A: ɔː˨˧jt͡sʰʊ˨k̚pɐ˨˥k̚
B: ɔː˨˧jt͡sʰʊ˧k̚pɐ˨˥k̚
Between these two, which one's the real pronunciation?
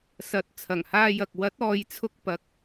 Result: B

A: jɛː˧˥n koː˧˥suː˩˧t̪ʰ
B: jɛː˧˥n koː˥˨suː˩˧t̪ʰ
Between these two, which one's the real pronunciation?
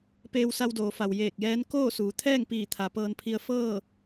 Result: B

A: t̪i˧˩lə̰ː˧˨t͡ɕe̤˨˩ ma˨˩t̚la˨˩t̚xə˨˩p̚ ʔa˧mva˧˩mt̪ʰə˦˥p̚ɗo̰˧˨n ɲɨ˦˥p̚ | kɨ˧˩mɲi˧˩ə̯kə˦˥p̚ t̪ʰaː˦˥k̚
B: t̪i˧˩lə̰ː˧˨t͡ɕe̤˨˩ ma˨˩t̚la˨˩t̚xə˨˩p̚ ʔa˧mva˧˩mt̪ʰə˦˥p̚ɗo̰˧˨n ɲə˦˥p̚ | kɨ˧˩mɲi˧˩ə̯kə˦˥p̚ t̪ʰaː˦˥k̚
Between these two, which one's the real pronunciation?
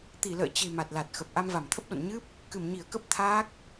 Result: A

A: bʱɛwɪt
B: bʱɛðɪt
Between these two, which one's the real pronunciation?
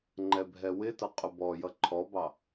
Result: A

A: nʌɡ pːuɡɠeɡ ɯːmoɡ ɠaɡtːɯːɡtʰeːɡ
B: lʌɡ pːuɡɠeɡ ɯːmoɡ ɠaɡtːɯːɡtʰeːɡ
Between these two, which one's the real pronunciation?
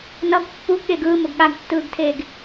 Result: A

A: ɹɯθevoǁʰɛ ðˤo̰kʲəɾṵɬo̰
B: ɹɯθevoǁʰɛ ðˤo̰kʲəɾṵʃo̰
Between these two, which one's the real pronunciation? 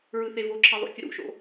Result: B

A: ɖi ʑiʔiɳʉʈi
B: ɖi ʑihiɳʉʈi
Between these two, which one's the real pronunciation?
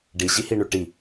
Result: B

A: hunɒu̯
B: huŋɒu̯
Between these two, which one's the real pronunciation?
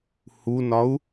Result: A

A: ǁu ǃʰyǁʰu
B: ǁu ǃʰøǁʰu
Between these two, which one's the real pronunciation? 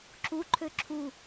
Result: B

